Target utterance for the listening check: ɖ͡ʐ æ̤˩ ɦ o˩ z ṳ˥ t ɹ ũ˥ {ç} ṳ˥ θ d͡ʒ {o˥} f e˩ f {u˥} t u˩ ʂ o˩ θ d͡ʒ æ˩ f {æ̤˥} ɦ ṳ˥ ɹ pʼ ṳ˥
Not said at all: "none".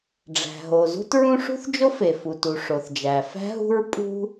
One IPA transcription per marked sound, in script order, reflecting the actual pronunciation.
ʂ, o˥, u˩, æ̤˥

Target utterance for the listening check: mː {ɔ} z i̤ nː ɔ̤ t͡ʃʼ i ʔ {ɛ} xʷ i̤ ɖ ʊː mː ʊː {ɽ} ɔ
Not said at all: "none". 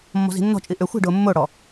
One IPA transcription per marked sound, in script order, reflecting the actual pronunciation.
ɔ̤, ʏ, ɽ

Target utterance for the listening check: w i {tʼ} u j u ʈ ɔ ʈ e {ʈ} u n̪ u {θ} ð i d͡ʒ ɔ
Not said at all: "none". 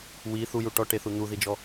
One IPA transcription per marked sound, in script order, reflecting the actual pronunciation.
θ, θ, none

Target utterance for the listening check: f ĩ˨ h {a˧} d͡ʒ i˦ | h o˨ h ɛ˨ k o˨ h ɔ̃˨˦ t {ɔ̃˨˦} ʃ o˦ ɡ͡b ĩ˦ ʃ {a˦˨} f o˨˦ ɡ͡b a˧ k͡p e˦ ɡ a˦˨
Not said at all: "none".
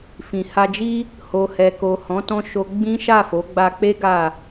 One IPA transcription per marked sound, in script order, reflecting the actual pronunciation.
a˧, ɔ̃˧, a˦˨

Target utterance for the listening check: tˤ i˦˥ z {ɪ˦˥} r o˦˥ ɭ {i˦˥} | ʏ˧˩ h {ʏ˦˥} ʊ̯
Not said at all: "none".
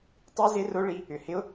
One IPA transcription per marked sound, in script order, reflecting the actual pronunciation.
ɪ˦˥, i˦˥, ɪ˦˥

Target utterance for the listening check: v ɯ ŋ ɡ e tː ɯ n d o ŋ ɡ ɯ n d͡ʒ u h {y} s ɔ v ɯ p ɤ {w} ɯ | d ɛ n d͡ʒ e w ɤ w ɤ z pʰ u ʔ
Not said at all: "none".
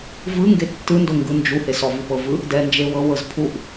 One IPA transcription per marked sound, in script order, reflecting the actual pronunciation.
e, v

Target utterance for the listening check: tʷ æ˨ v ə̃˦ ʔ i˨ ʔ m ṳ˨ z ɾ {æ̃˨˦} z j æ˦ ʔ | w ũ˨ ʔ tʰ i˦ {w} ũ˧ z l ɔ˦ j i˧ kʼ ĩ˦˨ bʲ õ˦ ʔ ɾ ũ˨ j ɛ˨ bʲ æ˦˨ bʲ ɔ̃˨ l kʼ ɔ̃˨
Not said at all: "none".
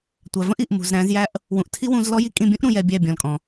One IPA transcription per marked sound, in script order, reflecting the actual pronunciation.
æ̃˨˦, w

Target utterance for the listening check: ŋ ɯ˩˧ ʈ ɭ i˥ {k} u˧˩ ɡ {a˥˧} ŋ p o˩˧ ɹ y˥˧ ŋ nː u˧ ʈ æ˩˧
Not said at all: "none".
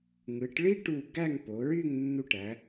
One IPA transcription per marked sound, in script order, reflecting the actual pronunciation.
ʈ, æ˥˧

